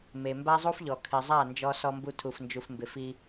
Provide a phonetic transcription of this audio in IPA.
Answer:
me˨mba˦zˤu˦fʎɔ˨ kʰɪ˨zˤa˦˨ nd͡ʒɔ˧sɔ˧mbu˧ tʰu˨fnd͡ʒu˨fmbɪ˨fi˧

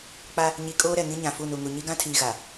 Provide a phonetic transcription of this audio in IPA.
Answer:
k͡pa˦ | ɲi˨ kʼoː˦ɾɛ˨ŋĩ˦ ɲã˨fu˦˨nu˨ŋu˨ ɲi˦ɡã˦tʰiː˨ ɣa˨

